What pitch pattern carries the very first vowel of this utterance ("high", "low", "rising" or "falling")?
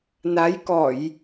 rising